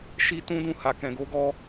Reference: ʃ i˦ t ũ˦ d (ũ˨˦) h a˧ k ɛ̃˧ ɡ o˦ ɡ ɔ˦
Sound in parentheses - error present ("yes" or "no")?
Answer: yes